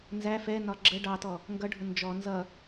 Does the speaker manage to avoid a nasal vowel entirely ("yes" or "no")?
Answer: yes